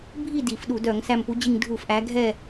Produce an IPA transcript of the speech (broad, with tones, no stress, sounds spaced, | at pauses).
bʱ i˥˨ d i˧˩˧ f ɗ u˧˩˧ d œ˧˩˧ ŋ s æ˧˩ m p u˨˦ d͡ʑ i˧˩ ŋ dʱ u˧˩˧ f ʔ æ˨˦ ɡʱ ɛ˥˨